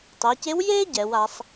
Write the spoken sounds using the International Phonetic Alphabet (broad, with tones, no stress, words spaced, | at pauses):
tˤɛ˩˧ce˧˥wjeː˥ ɟɛ˩˧wa˩˧sˤ